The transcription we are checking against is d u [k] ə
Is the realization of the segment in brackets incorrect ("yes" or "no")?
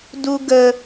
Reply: yes